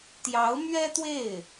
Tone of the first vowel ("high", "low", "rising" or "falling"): rising